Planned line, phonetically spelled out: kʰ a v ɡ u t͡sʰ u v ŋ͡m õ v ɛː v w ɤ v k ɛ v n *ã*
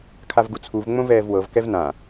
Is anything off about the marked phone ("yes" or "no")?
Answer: no